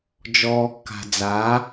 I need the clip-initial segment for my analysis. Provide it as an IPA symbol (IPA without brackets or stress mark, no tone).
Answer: d͡ʒ